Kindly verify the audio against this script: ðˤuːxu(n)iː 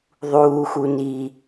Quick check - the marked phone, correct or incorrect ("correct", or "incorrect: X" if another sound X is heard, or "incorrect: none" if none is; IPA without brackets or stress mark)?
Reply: correct